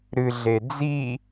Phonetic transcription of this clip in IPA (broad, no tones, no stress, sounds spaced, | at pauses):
ɾ ɨ ɮ e d͡z i